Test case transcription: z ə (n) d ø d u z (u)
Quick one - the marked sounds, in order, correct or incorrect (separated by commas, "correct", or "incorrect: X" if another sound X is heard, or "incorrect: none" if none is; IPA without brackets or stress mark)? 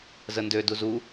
correct, correct